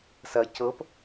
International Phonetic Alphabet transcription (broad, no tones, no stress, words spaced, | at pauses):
sɐ cɤp